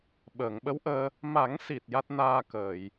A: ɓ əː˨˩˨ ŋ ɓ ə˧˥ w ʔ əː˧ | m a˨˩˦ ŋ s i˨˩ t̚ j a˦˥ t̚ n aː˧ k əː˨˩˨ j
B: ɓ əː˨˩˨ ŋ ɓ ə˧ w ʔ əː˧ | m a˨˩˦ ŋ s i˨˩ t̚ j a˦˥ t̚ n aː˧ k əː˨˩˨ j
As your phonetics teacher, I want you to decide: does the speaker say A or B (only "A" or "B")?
A